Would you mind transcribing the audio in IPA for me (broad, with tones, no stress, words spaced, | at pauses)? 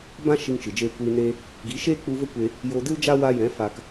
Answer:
bã˦ ʃi˧ŋt͡ʃɨ˨d͡ʒeː˧ kʷiː˧ne˦ | ɡi˨˦ʃeː˦ k͡pu˧və˦kʷe˧ | jo˧dɨ˦ld͡ʒa˦ wa˧jɛ̃˨˦ fa˧k